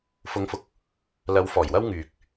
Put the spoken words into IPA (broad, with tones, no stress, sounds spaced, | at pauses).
f ʊ˨˧ ŋ f ʊ˨˥ k̚ | l ɐ˨˧ w f ɔː˨˩ j w ɐ˥ w ŋ yː˨ k̚